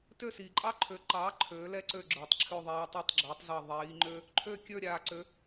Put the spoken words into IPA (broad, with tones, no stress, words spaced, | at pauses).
tø˥˩ siː˩ǃʼɑ˥ ǃʰø˩˥ǃɑː˩˥ ǃʰøː˩˥lɛ˥ǀø˥˩ ɡ͡ǁə˞˩tˤǁʰø˥˩ ðˤɛː˧tˤi˥˩tˤɡ͡ǁøː˩˥tˤzɑ˥˩ ðˤiː˩˥ŋ͡ǃø˥ | ǃʰø˥˩kʲə˞˥˩ ɾʲaː˩ǀø˩˥